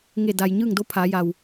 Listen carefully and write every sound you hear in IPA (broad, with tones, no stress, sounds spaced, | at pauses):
ŋ e˧˩ d a˩ j ɲ ɯː˥˨ ŋ d o˧˥ pʰ aː˩˧ j a˩ w